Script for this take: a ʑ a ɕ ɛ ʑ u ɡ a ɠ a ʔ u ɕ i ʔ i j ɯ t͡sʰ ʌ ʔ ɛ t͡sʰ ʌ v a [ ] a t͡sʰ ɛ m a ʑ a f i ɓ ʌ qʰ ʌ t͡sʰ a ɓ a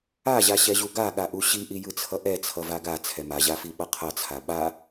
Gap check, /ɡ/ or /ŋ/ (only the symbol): ɡ